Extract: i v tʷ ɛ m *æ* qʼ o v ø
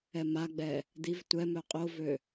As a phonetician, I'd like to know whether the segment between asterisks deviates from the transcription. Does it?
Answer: yes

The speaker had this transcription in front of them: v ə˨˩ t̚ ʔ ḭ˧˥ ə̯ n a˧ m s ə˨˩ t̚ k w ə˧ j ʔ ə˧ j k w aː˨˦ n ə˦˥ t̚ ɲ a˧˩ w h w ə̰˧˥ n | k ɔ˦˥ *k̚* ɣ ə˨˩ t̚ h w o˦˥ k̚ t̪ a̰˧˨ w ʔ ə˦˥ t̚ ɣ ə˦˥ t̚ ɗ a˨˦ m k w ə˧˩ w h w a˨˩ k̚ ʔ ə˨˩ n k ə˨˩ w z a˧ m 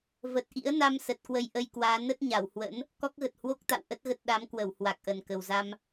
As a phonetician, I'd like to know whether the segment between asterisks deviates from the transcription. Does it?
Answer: no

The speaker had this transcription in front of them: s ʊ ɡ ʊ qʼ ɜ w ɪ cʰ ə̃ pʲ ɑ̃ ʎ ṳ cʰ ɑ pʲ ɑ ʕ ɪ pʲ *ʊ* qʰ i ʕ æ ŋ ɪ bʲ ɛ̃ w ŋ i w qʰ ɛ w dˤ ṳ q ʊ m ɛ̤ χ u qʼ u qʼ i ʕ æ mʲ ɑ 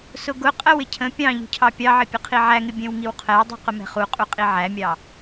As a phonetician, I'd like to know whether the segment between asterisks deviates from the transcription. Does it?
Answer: no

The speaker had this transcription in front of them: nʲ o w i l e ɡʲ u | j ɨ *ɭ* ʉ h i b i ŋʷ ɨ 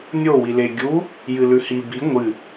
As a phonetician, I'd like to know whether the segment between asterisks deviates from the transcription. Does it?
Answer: yes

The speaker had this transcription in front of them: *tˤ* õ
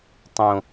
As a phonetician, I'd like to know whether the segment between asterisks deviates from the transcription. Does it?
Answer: no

